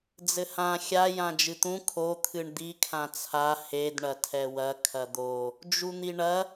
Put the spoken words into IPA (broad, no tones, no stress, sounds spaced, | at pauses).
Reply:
d͡z ɘ h ã xʲ a j ã d͡ʒ ɨ t̪ ũ kʰ o t̪ʰ ɨ ɳ d̪ i kʰ ã t͡sʰ a h e d ɳ ɐ tʰ ɛ w ɐ kʰ ɐ d̪ o | d͡ʒ u n̪ i ɳ ɐ